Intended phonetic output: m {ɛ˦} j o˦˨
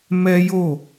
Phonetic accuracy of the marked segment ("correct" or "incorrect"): correct